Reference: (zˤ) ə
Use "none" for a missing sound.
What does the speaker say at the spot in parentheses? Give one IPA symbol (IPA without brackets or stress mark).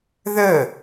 ð